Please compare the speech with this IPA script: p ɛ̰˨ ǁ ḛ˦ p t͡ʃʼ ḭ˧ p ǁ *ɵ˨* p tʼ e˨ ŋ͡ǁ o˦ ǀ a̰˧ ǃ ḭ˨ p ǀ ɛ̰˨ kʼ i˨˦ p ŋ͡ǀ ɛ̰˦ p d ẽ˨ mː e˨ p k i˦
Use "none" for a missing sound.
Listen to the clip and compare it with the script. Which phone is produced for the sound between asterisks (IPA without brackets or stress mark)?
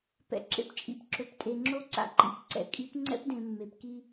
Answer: ɵ˨